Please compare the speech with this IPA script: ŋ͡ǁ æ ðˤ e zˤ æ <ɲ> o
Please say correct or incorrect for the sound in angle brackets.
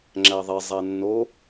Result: incorrect